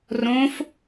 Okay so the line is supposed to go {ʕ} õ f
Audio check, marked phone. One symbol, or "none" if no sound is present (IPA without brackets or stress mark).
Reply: r